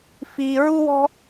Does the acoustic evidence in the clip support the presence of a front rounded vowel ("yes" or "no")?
no